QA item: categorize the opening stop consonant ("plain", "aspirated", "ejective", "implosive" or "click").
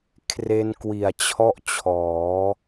aspirated